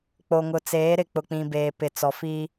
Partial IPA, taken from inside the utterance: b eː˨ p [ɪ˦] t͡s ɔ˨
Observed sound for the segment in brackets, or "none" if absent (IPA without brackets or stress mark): ɪ˨